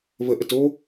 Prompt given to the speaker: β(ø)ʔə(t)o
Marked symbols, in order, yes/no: no, yes

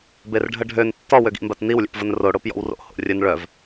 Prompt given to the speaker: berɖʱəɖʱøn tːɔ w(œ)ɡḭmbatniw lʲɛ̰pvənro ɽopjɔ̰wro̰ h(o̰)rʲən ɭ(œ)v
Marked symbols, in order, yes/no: no, yes, yes

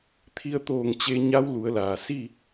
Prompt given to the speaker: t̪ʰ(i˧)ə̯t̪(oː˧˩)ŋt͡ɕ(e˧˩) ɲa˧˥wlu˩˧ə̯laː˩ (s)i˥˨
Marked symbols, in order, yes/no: yes, yes, no, yes

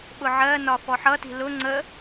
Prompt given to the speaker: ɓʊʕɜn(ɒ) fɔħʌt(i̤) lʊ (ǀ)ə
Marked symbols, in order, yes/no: yes, yes, no

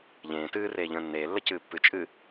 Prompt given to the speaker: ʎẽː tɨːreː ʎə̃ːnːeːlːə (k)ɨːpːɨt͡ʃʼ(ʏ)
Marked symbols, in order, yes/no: no, no

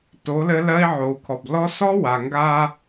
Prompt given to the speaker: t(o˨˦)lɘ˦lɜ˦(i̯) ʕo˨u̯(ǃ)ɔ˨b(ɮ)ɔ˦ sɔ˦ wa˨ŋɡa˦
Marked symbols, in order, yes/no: yes, yes, no, no

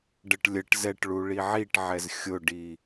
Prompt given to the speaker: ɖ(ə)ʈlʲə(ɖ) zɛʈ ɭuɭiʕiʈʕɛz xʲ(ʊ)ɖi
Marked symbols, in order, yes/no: yes, no, yes

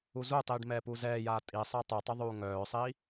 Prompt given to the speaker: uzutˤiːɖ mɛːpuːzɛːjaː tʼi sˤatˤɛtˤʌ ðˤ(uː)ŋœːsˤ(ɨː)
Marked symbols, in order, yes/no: yes, no

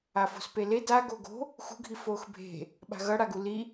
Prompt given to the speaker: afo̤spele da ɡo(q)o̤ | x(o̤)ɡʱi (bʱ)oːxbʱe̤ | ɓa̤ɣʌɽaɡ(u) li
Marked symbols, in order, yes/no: no, no, no, yes

